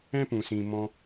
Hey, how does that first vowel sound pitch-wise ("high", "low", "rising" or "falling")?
high